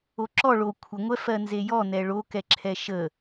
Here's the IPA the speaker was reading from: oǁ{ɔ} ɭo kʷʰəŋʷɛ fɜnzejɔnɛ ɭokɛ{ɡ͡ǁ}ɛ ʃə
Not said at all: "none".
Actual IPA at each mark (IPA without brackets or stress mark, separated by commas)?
ɔ, ǁʰ